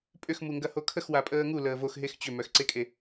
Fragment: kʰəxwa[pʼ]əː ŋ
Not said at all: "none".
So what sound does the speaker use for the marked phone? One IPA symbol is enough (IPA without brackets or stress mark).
pʼ